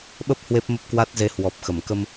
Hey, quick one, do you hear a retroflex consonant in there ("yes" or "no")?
no